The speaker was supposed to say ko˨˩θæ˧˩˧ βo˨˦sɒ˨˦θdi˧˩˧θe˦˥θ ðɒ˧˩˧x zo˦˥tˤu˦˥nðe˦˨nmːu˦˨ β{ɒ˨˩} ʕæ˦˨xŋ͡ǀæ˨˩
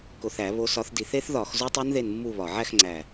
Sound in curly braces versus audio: correct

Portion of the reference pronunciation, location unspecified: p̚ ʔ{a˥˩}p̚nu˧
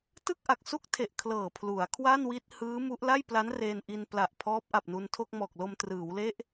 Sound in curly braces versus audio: incorrect: a˨˩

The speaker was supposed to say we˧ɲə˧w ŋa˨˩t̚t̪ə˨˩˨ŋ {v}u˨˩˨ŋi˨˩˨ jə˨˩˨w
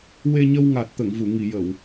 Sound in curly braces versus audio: correct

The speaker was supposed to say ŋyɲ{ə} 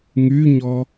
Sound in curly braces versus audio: incorrect: ɔ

